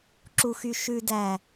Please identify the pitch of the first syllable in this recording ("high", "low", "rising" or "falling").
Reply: high